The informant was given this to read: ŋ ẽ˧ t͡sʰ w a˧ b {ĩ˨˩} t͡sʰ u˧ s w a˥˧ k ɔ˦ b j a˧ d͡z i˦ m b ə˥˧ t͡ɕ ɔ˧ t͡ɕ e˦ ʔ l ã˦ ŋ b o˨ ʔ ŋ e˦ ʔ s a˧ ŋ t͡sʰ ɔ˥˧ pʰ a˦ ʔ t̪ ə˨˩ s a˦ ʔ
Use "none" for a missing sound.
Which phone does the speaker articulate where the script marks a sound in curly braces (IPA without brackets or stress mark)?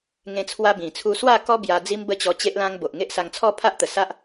ĩ˨˩